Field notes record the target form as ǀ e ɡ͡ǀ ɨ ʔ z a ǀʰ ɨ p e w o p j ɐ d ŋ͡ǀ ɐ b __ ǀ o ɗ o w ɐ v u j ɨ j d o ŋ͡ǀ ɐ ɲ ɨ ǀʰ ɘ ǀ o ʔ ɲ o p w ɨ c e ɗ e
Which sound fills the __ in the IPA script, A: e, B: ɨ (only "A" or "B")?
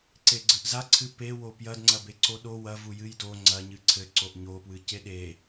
A